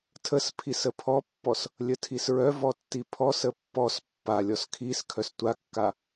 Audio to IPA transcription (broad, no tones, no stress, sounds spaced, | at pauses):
tʰ ə s pʰ i s ə pʰ ɔ pː ɔ s | lʲ ə tʰ i s ɹ œ v ɔ tː i pʰ ɔ s ə pː ɔ s pː a lʲ ɔ s kʰ i s kʰ œ s tʷ a kː a